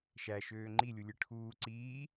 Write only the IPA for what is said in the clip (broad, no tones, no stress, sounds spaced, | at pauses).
ʃ æ ʃ øː ŋ͡ǃ i lʲ u lʲ ɯ ʈʰ uː ǀ iː